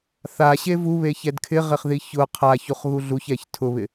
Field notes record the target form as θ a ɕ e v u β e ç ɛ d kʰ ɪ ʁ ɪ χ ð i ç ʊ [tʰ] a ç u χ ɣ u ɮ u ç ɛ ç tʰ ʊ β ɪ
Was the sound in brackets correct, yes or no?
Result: no